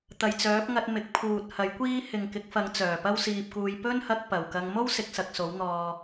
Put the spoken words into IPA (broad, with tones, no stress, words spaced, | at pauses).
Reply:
t̪ɐ˨jt͡sœː˨˥p̚ŋɐ˧t̚ mɪ˨˥k̚pʰuː˨t̚ hɐ˨˥jkʷiː˥ hɪ˨ŋkɪ˨˥k̚fɐ˨˧ŋ t͡sœː˨˩pɐ˥w siː˧p̚kuː˧j pɵ˥nhɐ˧k̚ pɐ˨˩wkɐ˧ŋ mo˥wsɪ˨k̚sɐ˨k̚ so˨˥wn̪ɔː˧